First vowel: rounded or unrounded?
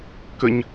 unrounded